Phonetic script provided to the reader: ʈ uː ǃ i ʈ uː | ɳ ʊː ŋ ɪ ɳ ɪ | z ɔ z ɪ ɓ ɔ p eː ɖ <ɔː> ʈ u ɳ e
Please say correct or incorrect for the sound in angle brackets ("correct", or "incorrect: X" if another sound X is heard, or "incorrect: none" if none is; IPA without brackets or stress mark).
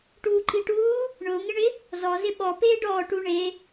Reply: correct